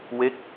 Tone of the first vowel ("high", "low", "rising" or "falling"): falling